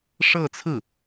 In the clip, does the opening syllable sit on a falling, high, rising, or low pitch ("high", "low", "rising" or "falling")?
falling